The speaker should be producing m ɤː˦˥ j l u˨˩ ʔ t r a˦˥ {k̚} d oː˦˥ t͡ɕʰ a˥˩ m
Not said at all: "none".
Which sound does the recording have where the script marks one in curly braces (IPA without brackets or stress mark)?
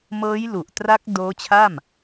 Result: k̚